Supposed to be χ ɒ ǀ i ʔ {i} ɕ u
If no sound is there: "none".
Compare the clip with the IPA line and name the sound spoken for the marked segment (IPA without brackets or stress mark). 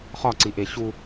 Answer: e